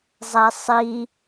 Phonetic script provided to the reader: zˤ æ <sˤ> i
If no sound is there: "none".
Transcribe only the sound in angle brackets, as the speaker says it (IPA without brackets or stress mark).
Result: sˤ